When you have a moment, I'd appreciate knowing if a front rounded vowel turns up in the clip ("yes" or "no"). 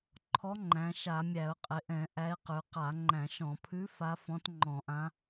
no